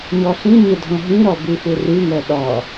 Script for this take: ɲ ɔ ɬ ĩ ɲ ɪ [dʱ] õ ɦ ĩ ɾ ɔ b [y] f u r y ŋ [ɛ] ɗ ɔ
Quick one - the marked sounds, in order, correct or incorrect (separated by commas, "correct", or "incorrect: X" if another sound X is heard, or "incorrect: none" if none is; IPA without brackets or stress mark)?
correct, correct, incorrect: œ